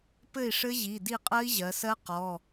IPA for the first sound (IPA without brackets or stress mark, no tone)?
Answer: p